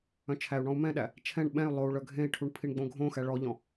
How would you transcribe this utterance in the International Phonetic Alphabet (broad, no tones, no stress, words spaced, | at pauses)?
œ̃t͡ʃʰæu̯ɳɔ̃u̯ mɛ̃ɗæ | t͡ʃʰɛ̃ɳ ɓɛ̃y̯ lˠou̯ɭœ ɡʱẽi̯ʈʰuɳ pʰiɳɡ͡bõɡʱõxæ ɭɔʎɔ̃